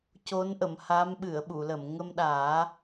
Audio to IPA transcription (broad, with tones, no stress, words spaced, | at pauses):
co˧˥nʔə˨˩˨mha˧˥m ɓɨ˨˩˨ə̯ɓu˨˩˨lə˨˩˨m ŋə˧mɗaː˨˩˦